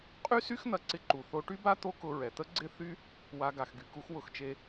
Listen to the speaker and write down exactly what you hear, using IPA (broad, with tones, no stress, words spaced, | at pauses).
qʼy˥sy˥x n̪ɐ˧ǀɪ˧ ǃu˩θo˧ ʈy˥ba˥ t̪o˥kʊ˧ ɹɛ˩t̪ə˥ ɡ͡ǀɪ˥θy˥ | wa˧ ɡa˩xɡy˩ku˧x wʊ˧xt͡ʃe˧